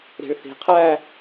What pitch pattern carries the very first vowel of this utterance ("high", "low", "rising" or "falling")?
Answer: low